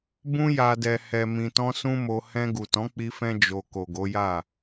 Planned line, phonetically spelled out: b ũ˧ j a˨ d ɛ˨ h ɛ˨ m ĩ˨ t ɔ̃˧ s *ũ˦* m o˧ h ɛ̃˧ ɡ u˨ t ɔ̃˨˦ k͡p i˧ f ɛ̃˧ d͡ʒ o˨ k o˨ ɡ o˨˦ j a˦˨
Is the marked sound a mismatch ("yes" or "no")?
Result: no